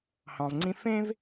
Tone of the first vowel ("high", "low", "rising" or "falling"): low